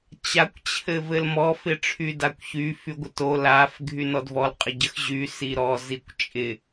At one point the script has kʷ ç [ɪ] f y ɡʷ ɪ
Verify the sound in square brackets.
incorrect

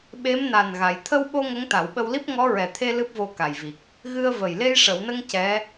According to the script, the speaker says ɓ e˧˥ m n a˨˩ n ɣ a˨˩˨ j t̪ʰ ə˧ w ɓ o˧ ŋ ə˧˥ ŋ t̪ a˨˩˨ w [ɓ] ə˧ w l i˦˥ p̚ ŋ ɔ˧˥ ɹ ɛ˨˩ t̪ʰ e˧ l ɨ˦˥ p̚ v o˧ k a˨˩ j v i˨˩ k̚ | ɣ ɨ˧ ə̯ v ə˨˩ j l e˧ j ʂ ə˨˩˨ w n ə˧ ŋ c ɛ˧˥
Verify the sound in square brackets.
correct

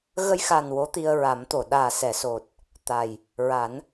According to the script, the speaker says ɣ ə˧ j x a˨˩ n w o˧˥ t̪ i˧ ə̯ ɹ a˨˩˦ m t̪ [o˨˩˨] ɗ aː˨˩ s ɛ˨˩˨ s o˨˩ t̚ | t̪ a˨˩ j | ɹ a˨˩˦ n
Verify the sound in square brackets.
correct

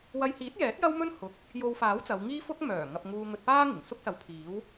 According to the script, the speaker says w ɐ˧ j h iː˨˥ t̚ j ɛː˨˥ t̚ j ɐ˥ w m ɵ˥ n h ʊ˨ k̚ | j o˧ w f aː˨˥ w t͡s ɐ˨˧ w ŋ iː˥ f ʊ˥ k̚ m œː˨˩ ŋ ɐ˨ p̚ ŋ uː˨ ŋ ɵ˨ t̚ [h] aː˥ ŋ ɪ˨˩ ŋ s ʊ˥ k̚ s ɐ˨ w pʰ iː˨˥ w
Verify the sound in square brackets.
incorrect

